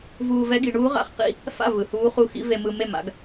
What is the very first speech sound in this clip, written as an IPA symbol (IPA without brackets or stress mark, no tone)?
v